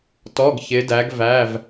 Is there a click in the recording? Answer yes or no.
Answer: no